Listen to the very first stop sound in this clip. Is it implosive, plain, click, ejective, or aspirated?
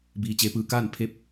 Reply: plain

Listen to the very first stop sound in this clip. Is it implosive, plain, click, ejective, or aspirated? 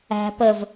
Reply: plain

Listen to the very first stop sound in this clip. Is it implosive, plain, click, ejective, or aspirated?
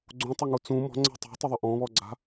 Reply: click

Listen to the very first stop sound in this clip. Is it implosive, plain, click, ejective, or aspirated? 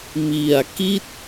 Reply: plain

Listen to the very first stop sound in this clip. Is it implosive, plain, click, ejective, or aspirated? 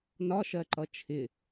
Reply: click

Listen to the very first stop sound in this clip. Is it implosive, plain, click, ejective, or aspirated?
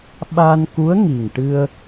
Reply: implosive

